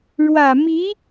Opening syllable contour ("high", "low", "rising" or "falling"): low